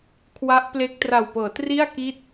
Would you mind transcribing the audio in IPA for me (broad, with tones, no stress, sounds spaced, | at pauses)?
kʰ w a˦˥ ʔ p l e˦˥ k̚ t r a˨˩ w p ɤː˩˦ t r i˥˩ a̯ k i˥˩ t̚